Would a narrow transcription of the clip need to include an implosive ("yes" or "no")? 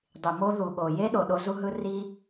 yes